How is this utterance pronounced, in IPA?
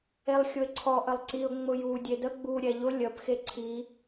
elˠxʲʊɪ̯ǀʰɔ ʔəlˠǀiʊ̯ ŋ͡mʊju dʲedə ɡ͡bu ɾʲɛʎʊ lʲəp xeǀʰi

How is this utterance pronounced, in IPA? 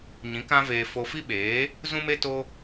ɲĩ˨˦ kã˦veː˧ fo˧fi˦ɓeː˨˦ | zũ˦me˦ to˦

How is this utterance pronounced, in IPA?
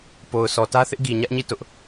po˨ʊ̯ sʰɔ˨tä˦θɪ˦ʔ ɡi˨ɲä˦ʔɲi˦˨ tʊ˦ʔ

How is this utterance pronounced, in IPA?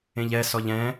ẽʎɛ sɔʎɛ̃

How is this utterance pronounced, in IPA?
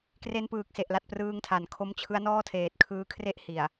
kre˧npɯː˨˩k̚se˨˩ʔla˨˩t̚ prɯː˧ŋtʰa˩˦nkʰo˦˥mt͡ɕʰɯ˦˥a̯ nɔː˥˩tʰeː˨˩t̚kʰɯː˦˥ kʰre˥˩ʔ hi˨˩a̯

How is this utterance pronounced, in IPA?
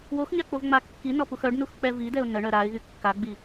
woxɲak͡povŋ͡ma kːinɔpux œɖnuxk͡pɛ vidɛʊ̯ nəɳœ ɾaɪ̯ɣy kːaɡ͡bi

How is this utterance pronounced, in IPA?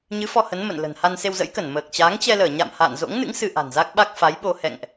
ɲɨ˨˦ fɔ˧hə˨˦n mə̰˧˨n lə̤˨˩n ha˧nse˧wzə̰˧˥jkə˧˩n məː˨˩k̚t͡ɕaː˨˦ŋ t͡ɕɛ˧ləː˧˩ɲa̰˧˨m ha̰ː˧˨nzo̰˧˥ŋnɨ̰˧˥ŋ sɨ˧ʔa̤˨˩nza˦˥k̚ɓa˦˥k̚ fa˨˦jɓo˧ hɛ̰˧˨ŋʔ

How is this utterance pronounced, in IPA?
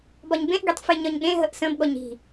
bɒɲbẽʔɡetˤ feɲɒɲɠẽ ɦəʔsə̃bɠɔɲ i̤

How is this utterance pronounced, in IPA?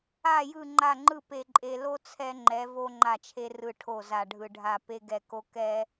a˥˨ jɯ˥˨ŋ͡ǃa˥˨ ŋ͡ǃɯ˥˨pe˧ ǃʼe˧lo˥ t͡sʰɛ˥ŋ͡ǃɛ˧˥ vo˥ŋ͡ǃa˥˨t͡ʃʰe˥ rɯ˥˨ʈʰo˥˨ za˧ɖʱɯ˧ɖʱa˥˨ pe˥ɡɛ˥˨ ko˥ kɛ˥

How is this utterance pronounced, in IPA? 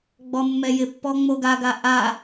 ɡ͡bɔmːɛjɪpːɔ ŋ͡moɡaɡa ʔa

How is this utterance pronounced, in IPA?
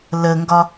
ləŋɡɒ

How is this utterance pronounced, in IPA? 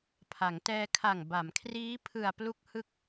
pʰa˩˦ŋtɛː˧ kʰa˨˩ŋba˩˦mkʰriː˦˥ pʰɯ˨˩a̯ plu˦˥k̚hɯ˦˥k̚

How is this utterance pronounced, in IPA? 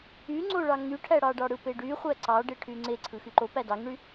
yŋ͡ǀoɭɑ ŋyʈʰæɽɑɖɑ ɽɯpeɖyχʷæ ǀɑɖe ʈʰyŋ͡ǀeǀʰɯ xyǃo pædɑŋɳy

